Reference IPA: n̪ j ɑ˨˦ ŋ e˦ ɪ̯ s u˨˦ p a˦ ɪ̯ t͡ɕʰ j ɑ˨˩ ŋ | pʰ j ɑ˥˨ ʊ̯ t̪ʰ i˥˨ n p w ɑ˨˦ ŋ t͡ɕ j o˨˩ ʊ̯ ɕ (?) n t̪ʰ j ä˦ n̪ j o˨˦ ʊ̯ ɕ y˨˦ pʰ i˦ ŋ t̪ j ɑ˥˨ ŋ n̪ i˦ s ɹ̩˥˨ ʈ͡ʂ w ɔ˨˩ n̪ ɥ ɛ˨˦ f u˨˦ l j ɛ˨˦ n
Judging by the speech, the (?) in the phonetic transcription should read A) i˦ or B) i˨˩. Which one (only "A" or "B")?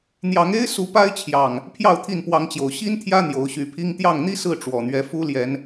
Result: A